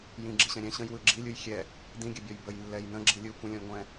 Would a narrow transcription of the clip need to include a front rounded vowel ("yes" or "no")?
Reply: no